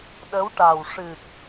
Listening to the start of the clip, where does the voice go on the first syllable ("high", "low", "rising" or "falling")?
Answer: rising